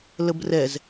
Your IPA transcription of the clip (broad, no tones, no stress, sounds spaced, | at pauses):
l ə b r ɛ z